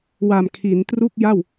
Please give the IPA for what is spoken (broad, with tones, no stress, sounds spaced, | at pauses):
w a˨˩ m kʰ i˩˦ n t r u˥˩ k̚ j a˥˩ w